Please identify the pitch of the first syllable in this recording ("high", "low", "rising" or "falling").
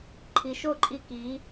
low